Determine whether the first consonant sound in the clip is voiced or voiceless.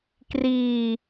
voiceless